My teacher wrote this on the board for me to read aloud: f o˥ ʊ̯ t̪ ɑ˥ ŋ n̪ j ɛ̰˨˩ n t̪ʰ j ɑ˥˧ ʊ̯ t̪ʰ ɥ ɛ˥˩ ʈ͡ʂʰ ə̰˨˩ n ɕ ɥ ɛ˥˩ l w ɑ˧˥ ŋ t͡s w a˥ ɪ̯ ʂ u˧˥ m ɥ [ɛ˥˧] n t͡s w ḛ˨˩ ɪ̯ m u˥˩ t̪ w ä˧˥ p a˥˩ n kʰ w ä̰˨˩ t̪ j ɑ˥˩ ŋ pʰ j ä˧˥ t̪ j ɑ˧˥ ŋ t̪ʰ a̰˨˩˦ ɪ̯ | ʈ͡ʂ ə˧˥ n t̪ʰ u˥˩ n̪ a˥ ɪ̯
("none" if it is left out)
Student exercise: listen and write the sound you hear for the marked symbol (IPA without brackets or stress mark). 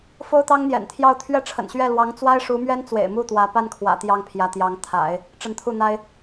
ɛ˥